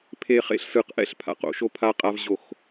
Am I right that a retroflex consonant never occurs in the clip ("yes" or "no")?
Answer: yes